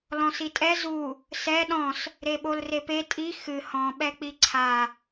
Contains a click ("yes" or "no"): yes